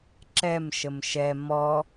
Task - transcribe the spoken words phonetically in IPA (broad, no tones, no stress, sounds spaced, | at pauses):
ǁ ɛ m ʃ ə m ʃ ɛ m ɔ